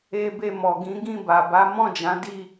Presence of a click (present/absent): absent